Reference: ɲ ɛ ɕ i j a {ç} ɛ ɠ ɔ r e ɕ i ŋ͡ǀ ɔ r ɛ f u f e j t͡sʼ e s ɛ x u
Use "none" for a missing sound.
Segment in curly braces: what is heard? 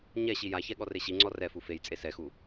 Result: ç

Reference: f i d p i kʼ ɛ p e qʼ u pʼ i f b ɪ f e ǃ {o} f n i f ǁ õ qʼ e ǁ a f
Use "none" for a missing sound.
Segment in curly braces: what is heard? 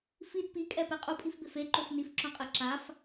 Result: o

